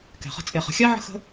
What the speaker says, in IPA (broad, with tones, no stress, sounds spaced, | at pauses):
k ɛ̤˨ χ ə̤˧ t͡sʼ e˨ χ ə̤˨ xʲ a˦ ʕ ə̤˦ x ə̤˦